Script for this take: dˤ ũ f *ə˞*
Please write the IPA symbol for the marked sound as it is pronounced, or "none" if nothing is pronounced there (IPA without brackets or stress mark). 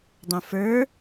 ə˞